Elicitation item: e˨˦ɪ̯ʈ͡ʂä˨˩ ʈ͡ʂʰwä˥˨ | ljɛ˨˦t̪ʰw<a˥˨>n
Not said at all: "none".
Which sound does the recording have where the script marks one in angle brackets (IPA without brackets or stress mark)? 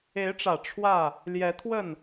ə˥˨